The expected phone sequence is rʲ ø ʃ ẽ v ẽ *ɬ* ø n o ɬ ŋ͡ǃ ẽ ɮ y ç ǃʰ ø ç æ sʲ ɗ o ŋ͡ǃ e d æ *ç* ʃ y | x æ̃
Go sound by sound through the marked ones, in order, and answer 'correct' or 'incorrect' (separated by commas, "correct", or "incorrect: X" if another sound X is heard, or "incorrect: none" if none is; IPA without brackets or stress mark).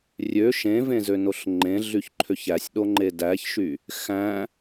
incorrect: z, correct